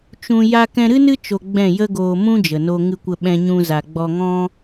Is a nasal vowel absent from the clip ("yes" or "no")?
no